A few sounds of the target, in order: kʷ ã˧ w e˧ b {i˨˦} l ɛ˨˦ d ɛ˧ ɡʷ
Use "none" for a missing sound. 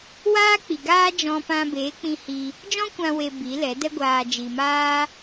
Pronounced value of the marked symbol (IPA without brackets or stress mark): i˨˦